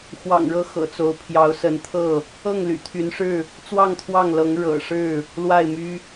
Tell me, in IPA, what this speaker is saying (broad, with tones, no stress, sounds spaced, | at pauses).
x w ɑ̰˨˩ ŋ ɻ ɤ˥˨ x ɤ̰˨˩ t͡s o˨˦ ʊ̯ pʰ j ɑ˨˦ ʊ̯ s ə˨˦ n t̪ʰ ɤ˥˨ | ɤ˥˨ ŋ l y̰˨˩ t̪ʰ y˨˦ n ʂ ɻ̩˥˨ | t͡s w ɑ˥˨ ŋ t̪ʰ w ɑ˥˨ ŋ l ɤ˨˦ ŋ ɻ ɤ̰˨˩ ʂ ɻ̩˥˨ | l w a˥˨ ɪ̯ m y˦